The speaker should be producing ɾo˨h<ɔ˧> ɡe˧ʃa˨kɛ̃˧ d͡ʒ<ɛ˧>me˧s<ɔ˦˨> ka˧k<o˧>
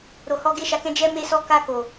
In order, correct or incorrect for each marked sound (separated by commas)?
correct, correct, incorrect, incorrect